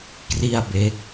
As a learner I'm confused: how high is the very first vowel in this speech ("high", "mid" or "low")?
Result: high